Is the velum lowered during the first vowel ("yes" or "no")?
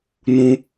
yes